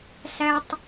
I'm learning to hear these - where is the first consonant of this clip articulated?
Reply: tongue tip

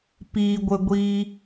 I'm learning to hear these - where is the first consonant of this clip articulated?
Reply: lips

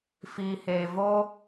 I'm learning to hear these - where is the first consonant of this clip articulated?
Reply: lips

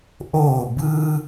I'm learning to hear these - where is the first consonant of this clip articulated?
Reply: throat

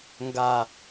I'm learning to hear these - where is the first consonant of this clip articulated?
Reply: velum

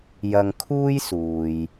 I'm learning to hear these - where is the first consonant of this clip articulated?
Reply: palate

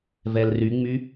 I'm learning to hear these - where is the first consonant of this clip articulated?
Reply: lips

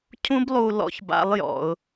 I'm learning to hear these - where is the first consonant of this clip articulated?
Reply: palate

